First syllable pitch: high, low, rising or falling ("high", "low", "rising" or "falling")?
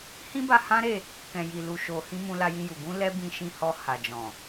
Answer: high